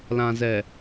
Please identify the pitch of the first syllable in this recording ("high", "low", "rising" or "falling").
low